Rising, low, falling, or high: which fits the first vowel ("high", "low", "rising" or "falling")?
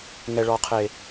low